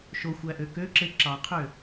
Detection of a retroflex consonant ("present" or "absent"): absent